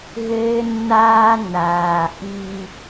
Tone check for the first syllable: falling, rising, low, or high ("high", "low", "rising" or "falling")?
high